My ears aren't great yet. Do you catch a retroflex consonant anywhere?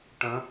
yes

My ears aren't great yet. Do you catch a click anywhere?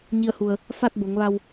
no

